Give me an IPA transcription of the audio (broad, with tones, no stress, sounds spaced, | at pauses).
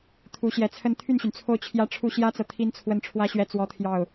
t̪ʰ u˧˥ ɕ j ɛ˧˥ t͡sʰ ə˥˧ n t̪ʰ y˥˩ n ɕ y˩ n t͡sʰ o˥˩ ʊ̯ t͡ɕʰ j ä˥ ʈ͡ʂʰ u˥ ɕ j ä˥ t͡s ɤ˨ t̪ʰ i˥ n t͡sʰ w ə˥˩ n ʈ͡ʂʰ w ä˥ ɕ ɥ ɛ˥˩ t͡s w ɔ˥ t̪ʰ j ɑ˥˩ ʊ̯